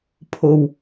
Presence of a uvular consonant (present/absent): absent